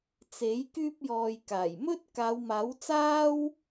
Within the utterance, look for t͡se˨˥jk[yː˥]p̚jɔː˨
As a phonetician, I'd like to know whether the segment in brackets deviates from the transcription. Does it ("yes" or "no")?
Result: yes